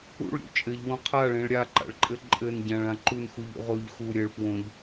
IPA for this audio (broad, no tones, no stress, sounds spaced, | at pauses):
ṵ ɭ ɾʲ ṵ t͡ʃʼ ɘ ʎ w õ qʰ a ɭ ẽ ɭ ɾʲ a ǃ a̰ ɭ ǃʼ ɘ ǃʼ ɘ n ɟ ã ɭ ã ǃ u n x u ʎ ṵ ʁ o ʎ x u ɾʲ ɘ ɭ p w õ ʎ